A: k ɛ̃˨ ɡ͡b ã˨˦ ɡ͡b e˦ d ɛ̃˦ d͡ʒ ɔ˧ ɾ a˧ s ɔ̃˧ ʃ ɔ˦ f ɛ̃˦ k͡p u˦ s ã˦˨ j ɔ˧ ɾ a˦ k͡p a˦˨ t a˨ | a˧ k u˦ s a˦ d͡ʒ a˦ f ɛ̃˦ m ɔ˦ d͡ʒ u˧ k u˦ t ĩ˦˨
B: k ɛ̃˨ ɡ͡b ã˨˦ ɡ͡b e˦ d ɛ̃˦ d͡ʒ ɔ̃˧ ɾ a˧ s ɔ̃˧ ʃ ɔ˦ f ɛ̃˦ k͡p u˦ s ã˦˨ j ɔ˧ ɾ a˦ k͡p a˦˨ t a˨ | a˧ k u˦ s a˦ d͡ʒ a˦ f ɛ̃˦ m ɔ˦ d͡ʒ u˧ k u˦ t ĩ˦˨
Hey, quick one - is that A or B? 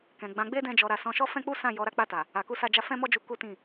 A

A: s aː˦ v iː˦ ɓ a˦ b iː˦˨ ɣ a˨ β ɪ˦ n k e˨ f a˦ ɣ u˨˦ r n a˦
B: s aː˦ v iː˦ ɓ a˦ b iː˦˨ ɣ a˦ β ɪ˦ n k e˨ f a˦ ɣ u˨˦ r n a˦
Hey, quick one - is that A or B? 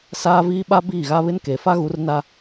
B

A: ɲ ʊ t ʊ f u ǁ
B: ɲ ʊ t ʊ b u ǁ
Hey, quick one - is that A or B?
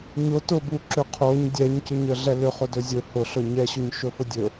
B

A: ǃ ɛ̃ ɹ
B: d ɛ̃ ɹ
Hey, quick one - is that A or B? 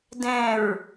B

